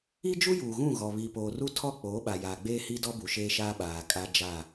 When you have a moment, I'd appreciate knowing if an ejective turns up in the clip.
yes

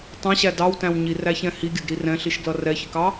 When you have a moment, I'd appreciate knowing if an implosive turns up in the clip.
no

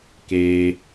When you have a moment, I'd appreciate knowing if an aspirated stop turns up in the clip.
no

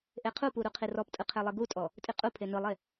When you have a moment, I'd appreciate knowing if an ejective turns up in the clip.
yes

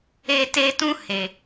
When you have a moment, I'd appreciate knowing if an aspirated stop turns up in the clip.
no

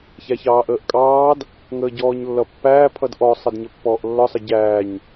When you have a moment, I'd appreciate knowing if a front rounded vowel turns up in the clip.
no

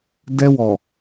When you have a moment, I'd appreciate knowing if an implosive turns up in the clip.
no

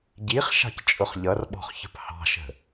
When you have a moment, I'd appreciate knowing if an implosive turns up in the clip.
yes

